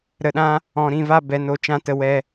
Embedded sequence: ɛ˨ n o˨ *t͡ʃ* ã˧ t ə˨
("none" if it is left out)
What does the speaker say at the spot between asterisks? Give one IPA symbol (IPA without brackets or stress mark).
t͡ʃ